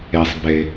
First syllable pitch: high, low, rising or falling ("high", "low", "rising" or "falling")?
low